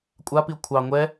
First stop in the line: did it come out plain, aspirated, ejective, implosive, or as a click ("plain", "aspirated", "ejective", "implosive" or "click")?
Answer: ejective